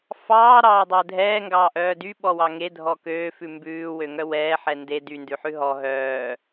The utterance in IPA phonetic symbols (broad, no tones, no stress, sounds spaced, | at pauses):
f ɑː ɾ ɑː dˤ ɛ dʱ ɛː ŋ ɡ ɑː ʔ œː d y ɓ ɔ w ɑ ŋ e dʱ ɔ k øː f ʉ m b ʉː w ø ŋ œ w ɛː ħ ɛ n d e d y n d ʉ ħ ʉ ɦ ɔ ɦ œː